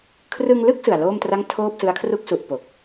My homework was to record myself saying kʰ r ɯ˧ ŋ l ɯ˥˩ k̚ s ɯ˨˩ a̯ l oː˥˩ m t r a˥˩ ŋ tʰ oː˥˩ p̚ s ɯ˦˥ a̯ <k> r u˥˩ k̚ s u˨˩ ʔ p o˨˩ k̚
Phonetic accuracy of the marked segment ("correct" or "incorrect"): incorrect